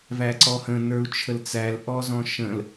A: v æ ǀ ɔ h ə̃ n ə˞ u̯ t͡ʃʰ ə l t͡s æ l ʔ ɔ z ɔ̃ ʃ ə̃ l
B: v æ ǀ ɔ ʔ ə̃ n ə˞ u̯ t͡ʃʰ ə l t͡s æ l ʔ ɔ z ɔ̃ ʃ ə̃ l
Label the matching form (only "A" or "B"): A